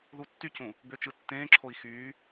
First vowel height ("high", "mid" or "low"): high